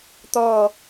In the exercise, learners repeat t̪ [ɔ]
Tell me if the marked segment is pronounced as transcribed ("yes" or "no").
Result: yes